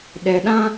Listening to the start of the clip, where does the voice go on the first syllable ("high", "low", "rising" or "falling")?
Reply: low